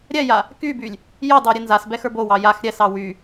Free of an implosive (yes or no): yes